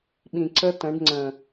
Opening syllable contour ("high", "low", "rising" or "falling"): low